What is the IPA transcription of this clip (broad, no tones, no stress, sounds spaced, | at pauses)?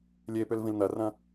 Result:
lʲ e p ʏ l v ĩ l n̪ ɐ r ɐ̃